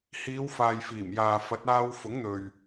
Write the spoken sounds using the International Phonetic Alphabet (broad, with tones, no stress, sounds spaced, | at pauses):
h iː˨˧ w f aː˨ j f iː˨˩ m j aː˨ f ɐ˨˥ t̚ aː˧ w f ʊ˨˥ ŋ n̪ ɵ˨ ɥ